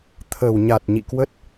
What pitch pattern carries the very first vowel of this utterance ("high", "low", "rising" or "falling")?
low